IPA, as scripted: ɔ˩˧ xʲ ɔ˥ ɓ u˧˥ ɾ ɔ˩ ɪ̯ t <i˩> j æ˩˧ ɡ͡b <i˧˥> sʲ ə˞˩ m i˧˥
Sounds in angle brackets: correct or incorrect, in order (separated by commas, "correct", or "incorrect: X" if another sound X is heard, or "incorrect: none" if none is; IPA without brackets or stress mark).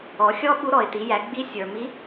incorrect: i˩˧, correct